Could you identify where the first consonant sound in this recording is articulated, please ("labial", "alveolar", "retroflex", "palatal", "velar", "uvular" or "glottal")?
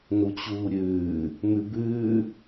alveolar